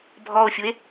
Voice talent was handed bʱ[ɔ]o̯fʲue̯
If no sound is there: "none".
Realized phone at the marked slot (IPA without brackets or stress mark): ɔ